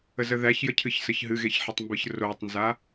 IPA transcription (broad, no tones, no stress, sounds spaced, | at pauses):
ə z ə ð æ ç j ə cʰ ɨ ç s ə ç ɦ ɨ ɣ e ç ħ ə tˤ m b ɨ ç r o tˤ n z a